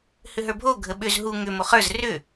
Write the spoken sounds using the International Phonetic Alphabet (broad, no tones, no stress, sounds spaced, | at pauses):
h ʏ ɦ ə˞ bʱ o ɡʱ ə ɓ ʏ z ɦ u ŋ ʏ m o χ ə˞ z r ʏ